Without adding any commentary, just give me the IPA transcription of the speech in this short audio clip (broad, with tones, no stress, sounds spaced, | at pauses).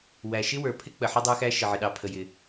w æ˩ ʃ ɪ˥ w ə˞˩ pʰ ɪ˥ k͡p ə˩ ħ ɪ˥ dˤ ə˞˥ x æ˥ ʃ ə˩ ʕ ɪ˩ ɗ ɑ˩ pʰ ə˩ j ɪ˩